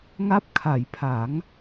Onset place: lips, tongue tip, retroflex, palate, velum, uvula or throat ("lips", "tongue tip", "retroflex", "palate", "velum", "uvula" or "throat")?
velum